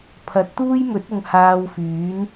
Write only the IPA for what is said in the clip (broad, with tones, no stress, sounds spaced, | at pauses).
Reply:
pʰ ɐ˨˥ t̚ t̪ uː˥ j m ɵ˨˥ t̚ ʊ˨ ŋ h aː˧ w f yː˨˥ n